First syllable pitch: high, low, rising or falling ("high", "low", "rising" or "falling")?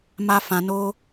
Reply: high